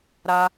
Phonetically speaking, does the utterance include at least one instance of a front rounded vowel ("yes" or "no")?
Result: no